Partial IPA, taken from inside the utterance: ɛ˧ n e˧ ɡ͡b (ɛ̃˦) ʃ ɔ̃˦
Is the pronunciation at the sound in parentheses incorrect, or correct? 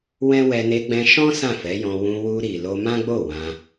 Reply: incorrect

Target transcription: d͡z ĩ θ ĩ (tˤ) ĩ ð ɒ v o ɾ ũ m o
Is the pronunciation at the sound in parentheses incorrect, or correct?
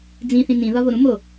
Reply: incorrect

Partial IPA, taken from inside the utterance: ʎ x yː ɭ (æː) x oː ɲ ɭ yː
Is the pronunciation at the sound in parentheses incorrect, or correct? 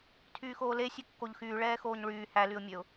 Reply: incorrect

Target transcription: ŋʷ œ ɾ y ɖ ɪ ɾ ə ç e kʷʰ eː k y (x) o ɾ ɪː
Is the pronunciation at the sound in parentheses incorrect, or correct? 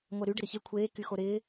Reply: correct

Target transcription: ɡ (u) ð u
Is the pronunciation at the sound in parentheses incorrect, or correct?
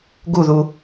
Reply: correct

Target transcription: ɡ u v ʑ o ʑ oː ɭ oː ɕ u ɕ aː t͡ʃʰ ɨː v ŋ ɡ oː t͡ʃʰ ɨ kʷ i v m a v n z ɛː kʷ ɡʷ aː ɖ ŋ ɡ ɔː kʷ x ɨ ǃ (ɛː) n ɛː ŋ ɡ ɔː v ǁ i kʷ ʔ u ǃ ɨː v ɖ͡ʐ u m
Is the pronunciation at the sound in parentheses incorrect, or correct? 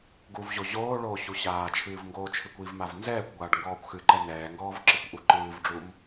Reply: incorrect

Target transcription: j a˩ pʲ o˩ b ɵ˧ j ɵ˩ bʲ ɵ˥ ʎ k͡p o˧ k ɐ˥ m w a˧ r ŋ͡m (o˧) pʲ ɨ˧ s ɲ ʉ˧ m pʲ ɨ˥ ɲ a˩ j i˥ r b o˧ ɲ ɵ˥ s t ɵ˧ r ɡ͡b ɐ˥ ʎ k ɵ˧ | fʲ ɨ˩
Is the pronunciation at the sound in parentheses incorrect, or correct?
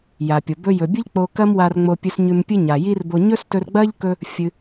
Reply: correct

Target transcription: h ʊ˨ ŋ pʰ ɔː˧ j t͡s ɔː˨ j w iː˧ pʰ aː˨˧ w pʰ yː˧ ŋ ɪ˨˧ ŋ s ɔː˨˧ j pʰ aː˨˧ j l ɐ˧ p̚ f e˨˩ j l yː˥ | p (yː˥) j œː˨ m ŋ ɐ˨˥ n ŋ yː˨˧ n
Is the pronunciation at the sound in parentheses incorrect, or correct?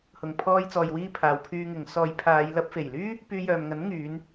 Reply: incorrect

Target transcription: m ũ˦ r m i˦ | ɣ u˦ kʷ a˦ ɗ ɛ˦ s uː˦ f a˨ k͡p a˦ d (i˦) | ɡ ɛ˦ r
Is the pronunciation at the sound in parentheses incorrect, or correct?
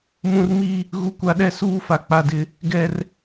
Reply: incorrect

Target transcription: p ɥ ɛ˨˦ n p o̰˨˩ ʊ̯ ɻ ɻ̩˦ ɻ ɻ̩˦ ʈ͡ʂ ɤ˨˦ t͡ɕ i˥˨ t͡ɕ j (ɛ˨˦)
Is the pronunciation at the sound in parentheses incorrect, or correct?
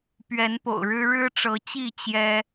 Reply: incorrect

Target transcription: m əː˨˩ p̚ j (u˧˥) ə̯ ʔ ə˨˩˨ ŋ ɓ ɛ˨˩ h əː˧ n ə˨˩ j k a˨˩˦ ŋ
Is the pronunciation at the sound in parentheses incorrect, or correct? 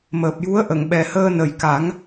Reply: correct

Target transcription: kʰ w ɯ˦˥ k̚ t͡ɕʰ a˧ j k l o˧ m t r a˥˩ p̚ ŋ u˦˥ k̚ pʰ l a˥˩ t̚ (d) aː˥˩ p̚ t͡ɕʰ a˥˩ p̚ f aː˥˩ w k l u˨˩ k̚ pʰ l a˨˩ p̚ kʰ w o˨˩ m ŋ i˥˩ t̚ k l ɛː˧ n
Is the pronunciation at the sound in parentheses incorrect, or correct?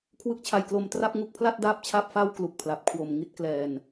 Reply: correct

